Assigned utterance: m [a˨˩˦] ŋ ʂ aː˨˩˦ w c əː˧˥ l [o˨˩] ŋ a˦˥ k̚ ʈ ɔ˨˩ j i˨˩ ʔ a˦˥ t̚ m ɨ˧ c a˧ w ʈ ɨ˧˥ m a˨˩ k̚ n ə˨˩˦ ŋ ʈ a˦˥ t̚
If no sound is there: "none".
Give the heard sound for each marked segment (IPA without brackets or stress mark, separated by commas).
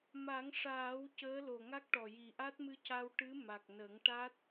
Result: a˨˩˦, o˨˩